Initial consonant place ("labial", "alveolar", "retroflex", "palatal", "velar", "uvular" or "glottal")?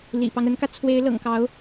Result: alveolar